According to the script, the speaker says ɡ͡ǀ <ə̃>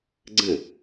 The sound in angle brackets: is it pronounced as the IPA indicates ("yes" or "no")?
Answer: yes